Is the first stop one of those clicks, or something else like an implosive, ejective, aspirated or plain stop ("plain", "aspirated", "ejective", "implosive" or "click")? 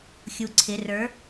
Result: click